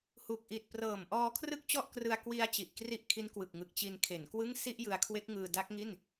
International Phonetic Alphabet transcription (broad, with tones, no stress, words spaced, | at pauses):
hu˨˩k̚ʔi˨˩t̚prɤː˨˩m ʔɔː˧kʰrɯ˥˩k̚t͡ɕɔ˥˩ʔkrɯ˧a̯ kwi˧a̯ t͡ɕi˨˩ʔkri˦˥ʔkʰi˦˥nkwɯ˨˩k̚ ŋɯ˨˩k̚t͡ɕi˧nkʰe˩˦nkwɯ˥˩ŋ si˥˩ʔjɯ˧a̯kʰwe˦˥k̚ŋɯː˧ da˦˥k̚ŋi˥˩n